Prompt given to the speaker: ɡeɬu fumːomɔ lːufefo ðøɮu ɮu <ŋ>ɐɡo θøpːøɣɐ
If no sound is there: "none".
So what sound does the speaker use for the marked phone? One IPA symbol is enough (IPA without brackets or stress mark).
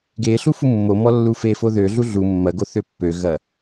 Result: mː